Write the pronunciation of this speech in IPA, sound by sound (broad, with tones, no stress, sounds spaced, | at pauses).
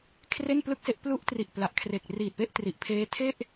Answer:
kʰ r e˥˩ n p l ɯ˥˩ k̚ s e˥˩ ʔ p l u˦˥ ʔ t r i˨˩ ʔ p l a˨˩ ʔ kʰ r e˨˩ k̚ r iː˨˩ t̚ p e˥˩ ʔ t r i˨˩ ʔ pʰ eː˦˥ tʰ e˥˩ ʔ